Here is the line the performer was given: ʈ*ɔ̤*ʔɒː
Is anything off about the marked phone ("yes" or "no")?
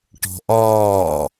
no